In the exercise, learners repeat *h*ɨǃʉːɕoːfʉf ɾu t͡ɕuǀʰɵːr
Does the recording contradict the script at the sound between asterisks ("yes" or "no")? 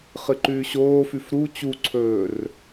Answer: yes